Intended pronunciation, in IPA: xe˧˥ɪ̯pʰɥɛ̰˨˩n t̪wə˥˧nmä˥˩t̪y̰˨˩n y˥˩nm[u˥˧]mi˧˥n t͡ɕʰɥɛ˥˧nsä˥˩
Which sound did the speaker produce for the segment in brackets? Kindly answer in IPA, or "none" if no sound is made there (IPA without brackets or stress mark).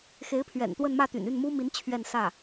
u˥